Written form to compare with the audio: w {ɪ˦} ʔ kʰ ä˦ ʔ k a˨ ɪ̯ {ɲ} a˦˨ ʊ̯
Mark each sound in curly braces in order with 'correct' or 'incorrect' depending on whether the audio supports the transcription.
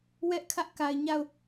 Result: incorrect, correct

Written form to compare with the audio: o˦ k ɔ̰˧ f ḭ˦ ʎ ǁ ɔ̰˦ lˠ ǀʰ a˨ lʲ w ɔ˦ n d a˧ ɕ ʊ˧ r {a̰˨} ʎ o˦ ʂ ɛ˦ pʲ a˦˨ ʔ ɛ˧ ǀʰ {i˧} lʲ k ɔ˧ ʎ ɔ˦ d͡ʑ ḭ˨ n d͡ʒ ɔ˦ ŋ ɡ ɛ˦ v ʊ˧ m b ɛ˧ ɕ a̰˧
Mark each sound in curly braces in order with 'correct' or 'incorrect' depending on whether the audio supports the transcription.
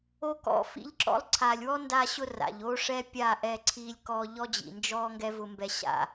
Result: correct, correct

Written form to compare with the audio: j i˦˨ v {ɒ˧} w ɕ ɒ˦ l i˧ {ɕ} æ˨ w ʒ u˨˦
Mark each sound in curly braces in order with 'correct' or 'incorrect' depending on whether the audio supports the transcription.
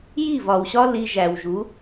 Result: incorrect, incorrect

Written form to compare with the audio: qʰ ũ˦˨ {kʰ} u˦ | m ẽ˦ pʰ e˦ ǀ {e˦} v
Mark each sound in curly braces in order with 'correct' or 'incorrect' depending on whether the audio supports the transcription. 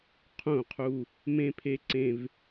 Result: incorrect, incorrect

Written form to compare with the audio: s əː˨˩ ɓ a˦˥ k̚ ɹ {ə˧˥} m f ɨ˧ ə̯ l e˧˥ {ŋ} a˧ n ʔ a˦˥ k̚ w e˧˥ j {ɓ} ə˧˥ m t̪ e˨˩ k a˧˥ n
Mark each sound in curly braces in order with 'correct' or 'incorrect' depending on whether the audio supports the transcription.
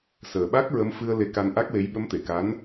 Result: correct, incorrect, correct

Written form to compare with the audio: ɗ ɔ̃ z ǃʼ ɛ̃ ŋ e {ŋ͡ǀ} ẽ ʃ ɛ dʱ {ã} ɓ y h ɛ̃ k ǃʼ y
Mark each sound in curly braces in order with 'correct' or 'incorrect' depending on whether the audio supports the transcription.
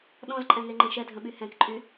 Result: incorrect, incorrect

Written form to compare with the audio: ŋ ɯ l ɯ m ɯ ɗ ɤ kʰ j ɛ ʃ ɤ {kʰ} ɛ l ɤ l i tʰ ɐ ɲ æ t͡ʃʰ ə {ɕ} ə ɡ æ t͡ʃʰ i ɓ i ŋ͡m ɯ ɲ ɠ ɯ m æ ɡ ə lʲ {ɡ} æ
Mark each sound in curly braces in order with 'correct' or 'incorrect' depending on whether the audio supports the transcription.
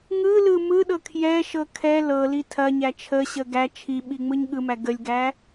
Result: correct, correct, correct

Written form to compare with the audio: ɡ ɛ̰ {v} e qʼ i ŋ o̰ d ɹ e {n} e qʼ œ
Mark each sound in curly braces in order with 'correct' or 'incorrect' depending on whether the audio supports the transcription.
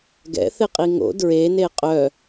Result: incorrect, correct

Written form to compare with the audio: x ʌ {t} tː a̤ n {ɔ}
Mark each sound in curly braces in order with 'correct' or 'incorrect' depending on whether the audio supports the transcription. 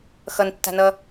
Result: incorrect, incorrect

